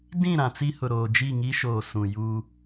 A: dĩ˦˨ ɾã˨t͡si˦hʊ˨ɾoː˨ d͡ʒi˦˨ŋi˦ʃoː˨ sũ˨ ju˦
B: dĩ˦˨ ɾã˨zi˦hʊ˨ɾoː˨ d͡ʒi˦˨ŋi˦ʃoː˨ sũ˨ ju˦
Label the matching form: A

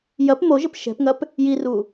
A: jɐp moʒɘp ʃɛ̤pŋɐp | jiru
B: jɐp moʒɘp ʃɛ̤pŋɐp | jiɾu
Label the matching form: A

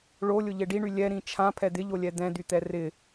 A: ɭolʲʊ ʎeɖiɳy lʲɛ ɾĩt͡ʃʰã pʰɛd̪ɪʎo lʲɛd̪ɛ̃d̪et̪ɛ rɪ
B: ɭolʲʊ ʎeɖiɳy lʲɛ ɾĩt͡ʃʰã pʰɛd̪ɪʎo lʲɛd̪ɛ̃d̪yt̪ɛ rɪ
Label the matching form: B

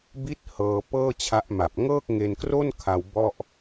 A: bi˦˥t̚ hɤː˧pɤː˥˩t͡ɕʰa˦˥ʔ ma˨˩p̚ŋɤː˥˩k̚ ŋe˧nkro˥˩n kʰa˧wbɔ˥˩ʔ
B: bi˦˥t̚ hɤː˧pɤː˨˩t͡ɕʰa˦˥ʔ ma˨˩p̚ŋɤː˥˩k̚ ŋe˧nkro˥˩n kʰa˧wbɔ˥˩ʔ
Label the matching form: A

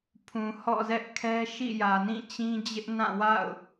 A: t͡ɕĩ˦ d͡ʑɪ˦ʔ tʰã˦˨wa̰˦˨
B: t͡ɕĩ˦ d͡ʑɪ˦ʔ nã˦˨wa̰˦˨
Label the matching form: B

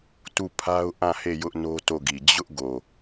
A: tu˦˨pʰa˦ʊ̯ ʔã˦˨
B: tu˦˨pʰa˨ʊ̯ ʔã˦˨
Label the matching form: A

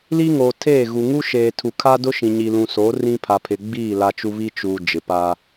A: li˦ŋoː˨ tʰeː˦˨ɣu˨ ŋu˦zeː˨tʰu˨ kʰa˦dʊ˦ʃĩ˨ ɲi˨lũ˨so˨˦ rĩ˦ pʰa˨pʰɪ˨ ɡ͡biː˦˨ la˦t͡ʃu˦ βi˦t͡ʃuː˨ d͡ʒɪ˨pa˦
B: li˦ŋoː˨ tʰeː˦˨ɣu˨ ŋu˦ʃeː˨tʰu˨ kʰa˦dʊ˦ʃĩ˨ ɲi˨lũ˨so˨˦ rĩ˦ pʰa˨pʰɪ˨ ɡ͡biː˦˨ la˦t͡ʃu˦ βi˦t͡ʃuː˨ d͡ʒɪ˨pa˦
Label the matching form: B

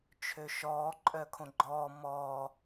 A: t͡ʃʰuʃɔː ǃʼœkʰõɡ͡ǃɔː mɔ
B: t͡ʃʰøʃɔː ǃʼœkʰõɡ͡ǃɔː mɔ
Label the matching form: B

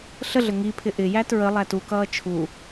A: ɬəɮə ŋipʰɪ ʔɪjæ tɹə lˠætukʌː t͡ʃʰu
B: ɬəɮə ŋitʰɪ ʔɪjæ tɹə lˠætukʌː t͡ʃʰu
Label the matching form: A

